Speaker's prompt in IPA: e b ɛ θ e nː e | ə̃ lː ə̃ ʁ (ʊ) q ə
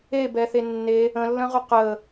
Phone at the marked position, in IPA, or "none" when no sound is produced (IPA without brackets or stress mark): ʊ